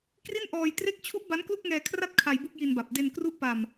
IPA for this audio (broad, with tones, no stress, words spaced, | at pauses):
kri˥˩nʔɔː˧j tre˦˥k̚t͡ɕʰu˦˥ʔ ba˦˥nklu˥˩k̚ŋɛː˧kʰra˥˩t̚ kʰa˧jbu˥˩k̚ji˧nba˨˩p̚ de˧nkru˥˩ʔpa˧m